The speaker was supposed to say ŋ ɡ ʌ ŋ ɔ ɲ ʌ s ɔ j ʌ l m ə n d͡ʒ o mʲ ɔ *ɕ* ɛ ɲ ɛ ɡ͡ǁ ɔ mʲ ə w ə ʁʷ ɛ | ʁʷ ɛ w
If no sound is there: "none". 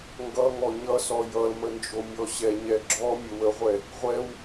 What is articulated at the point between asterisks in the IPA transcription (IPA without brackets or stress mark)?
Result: ɕ